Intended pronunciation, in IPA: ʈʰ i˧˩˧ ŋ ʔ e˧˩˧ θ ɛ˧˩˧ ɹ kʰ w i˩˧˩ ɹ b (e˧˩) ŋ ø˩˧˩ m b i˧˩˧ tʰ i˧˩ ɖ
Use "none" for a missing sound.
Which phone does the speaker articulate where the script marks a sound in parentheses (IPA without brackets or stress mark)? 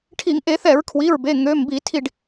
e˩˧˩